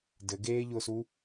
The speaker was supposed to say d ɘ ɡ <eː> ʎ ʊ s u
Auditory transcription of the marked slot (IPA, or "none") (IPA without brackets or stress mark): eː